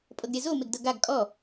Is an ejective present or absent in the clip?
present